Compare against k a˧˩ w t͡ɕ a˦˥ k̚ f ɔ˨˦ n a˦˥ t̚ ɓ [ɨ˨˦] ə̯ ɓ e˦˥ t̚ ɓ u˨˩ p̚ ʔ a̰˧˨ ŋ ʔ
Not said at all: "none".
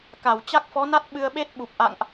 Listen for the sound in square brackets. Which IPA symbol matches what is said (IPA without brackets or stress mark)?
ɨ˧